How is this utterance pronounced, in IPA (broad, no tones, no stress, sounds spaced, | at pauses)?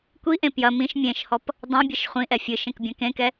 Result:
kʷ i ʔ ẽ p j ɐ m ĩ ʃ mʲ ẽ ʃ h ɔ p | dˤ ɛ̃ bʲ ɘ ʃ χʷ ĩ ʔ ɛ fʲ ɨ ʃ ẽ k bʲ ɐ̃ k ẽ k ɛ